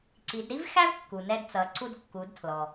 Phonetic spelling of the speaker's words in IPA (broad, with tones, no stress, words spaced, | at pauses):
ǀi˩˧dɾi˥vxæ˥v kːu˩nɛ˧dt͡sʌ˩˧ ǀu˧dkːu˩˧dtʰlɔ˩